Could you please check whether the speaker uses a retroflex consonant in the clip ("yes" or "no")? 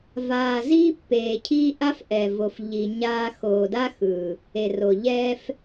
no